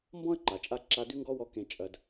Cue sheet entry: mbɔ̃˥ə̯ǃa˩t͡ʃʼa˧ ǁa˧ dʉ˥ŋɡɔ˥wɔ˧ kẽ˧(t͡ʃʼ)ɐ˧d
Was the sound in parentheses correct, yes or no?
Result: yes